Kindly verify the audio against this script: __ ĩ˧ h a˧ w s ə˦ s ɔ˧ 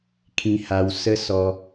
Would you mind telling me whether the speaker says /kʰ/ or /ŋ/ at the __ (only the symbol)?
kʰ